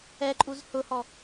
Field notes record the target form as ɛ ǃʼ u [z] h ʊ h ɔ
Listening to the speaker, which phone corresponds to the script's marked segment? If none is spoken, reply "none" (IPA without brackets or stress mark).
z